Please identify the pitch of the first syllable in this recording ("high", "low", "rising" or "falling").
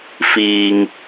low